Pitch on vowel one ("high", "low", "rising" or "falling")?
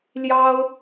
high